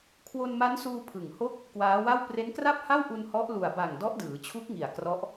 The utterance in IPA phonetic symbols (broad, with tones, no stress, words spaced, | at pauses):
kʰwo˧nma˦˥nsuː˧ pʰɯ˨˩ŋho˥˩k̚ | kwaː˦˥wa˥˩w pre˦˥nkra˥˩p̚ha˥˩wʔu˧n hɔ˦˥ʔlu˨˩a̯ ba˨˩ŋ dɔ˦˥ʔdɯː˩˦t͡ɕʰu˦˥k̚ŋi˨˩a̯ krɔ˦˥ʔ